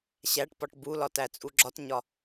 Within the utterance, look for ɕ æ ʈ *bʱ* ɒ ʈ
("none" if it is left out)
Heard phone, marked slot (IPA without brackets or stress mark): p